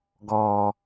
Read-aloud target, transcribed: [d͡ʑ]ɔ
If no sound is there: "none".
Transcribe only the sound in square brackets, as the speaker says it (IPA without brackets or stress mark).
ɡ